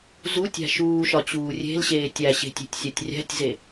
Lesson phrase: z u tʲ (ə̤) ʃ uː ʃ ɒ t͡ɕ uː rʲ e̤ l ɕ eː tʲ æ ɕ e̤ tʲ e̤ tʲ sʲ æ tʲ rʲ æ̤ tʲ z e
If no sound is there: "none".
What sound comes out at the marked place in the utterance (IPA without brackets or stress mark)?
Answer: æ̤